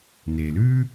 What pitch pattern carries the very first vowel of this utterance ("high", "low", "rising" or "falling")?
low